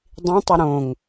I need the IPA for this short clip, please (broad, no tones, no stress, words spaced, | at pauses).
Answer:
dˤĩtˤə ɾõŋ